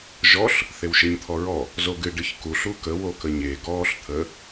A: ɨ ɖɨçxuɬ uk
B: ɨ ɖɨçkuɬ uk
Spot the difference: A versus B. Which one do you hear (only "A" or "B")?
B